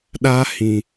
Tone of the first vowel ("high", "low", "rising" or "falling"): high